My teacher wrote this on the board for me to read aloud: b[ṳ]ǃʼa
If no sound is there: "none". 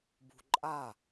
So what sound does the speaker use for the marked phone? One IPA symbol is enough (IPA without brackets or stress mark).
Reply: ṳ